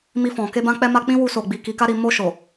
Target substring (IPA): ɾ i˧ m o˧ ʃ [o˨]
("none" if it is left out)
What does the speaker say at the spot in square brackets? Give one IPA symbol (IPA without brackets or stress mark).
o˨